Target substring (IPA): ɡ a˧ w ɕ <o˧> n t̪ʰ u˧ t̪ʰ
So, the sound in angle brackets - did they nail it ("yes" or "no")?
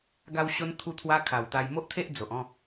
yes